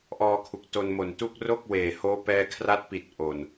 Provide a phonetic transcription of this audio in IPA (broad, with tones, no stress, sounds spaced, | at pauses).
ʔ ɔː˧ kʰ u˨˩ k̚ t o˧ n m o˨˩ n t uː˥˩ k̚ r o˥˩ k̚ w eː˨˩ h oː˦˥ p ɛː˧ kʰ r a˦˥ t̚ p i˨˩ t̚ ʔ o˨˩ n